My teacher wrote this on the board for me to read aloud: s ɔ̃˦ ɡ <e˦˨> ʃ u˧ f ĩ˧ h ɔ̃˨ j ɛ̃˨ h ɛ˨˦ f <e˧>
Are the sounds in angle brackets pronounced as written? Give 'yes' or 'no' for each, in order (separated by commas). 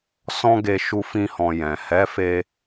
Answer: no, yes